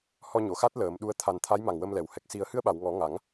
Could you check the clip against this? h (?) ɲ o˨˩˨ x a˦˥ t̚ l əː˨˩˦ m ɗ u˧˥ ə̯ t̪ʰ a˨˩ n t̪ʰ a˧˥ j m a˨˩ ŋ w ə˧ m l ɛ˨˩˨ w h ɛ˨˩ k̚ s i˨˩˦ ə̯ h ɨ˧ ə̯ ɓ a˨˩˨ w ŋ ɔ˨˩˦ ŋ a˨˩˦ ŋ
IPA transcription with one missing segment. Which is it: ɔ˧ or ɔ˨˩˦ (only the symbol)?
ɔ˧